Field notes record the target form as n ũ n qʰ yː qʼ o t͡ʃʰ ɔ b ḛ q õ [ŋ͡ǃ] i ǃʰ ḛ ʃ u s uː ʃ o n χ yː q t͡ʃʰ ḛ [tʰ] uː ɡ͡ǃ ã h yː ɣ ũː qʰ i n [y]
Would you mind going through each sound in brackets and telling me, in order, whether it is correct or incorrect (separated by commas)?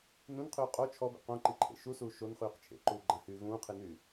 incorrect, incorrect, incorrect